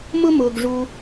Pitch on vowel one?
high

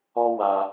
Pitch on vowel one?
high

